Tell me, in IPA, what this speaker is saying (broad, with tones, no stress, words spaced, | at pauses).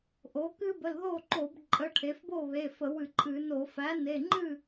ʔo˩˥ kɨ˥ bə˩˧˩lðo˥˨ǃo˧˩˧b ǃʼə˩˧˩ʈʰe˩˧fbo˥˨βe˩˧˩ fə˧˩˧wɨ˧˩˧ǃʼɨ˧˩˧no˧˩˧ fæ˩˥ne˩˧˩ ŋ͡ǃɨ˥˨